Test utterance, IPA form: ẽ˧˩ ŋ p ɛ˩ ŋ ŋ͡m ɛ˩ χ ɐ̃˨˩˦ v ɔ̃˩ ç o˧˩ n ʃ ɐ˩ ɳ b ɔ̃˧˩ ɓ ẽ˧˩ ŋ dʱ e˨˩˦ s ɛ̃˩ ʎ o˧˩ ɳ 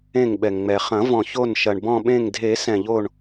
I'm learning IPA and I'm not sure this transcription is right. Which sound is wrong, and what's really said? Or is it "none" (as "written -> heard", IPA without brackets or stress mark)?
p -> ɓ